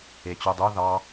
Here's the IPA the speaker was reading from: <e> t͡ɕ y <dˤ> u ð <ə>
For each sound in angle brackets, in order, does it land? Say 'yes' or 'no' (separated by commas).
yes, yes, no